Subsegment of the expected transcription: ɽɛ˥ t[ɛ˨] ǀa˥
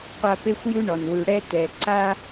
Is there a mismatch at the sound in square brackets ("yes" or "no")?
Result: no